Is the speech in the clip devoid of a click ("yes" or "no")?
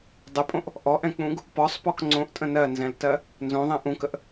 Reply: no